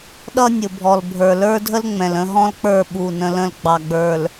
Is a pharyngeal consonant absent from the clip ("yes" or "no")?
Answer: yes